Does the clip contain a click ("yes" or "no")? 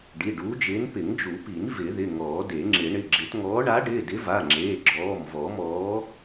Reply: yes